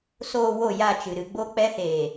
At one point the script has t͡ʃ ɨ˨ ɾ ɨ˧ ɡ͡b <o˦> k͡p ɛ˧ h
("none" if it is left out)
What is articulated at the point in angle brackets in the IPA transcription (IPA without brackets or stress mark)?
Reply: o˦